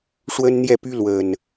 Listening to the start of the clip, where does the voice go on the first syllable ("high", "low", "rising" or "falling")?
high